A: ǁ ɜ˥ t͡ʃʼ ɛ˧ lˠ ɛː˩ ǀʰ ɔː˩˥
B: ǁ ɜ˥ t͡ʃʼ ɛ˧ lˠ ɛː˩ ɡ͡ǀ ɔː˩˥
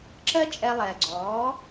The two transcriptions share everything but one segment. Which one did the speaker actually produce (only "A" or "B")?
B